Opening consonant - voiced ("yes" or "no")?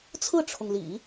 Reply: no